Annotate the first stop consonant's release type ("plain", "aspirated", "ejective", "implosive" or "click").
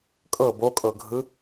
ejective